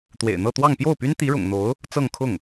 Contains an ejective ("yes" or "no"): no